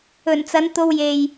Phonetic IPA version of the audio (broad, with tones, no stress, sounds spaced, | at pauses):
ɵ˨˩ n t͡s ɐ˨˧ n t̪ o˧ w j e˨ j